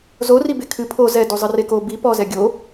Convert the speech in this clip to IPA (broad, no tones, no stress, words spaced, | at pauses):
zoribe kʰɨ pʰo zɛdu zˤɨreko bi pɔzɛ ɡʲo